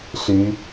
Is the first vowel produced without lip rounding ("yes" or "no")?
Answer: no